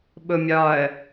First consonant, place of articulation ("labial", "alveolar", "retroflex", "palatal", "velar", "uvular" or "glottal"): labial